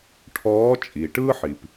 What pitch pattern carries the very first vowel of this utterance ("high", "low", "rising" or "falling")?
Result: rising